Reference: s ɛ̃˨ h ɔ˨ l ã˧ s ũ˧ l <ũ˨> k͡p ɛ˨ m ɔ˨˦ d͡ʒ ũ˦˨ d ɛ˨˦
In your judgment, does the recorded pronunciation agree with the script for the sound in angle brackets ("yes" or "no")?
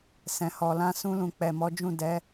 yes